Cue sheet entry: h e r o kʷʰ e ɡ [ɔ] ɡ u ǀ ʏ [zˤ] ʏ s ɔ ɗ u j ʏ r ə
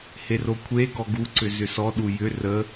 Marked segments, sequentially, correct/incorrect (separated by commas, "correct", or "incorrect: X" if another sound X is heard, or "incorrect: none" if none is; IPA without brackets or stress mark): correct, incorrect: z